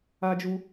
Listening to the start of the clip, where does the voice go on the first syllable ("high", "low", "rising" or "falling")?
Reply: high